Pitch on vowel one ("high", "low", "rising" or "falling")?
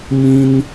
high